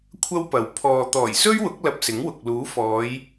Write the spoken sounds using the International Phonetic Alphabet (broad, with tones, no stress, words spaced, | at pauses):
kʷʰɐ˥wpɐ˨wpʰɔː˧ t̪ɔː˨˩jsɵ˥ɥwʊ˨˥k̚ lɐ˧p̚sɪ˨˥ŋwʊ˨k̚ luː˨˥fɔː˨˧j